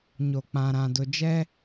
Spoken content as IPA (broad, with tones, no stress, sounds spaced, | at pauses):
ɲ o˨ k͡p ã˨ ɾ ã˨ d ʊ˨ d͡ʒ ɛ˦